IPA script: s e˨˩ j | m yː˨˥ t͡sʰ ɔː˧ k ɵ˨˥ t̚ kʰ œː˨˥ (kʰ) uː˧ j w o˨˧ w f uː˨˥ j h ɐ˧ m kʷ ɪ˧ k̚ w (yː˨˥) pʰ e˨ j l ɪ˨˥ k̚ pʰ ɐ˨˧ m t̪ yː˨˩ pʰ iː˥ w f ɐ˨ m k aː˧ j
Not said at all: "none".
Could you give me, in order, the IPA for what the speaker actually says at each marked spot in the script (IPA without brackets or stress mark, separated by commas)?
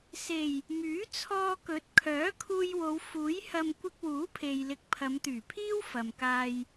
kʰ, uː˨˥